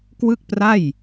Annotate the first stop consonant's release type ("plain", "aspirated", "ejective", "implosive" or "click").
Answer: plain